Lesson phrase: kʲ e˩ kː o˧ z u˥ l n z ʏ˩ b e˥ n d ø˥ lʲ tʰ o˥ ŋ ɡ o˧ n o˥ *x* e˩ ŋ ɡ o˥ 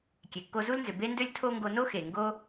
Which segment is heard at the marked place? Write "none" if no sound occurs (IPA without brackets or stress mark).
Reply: x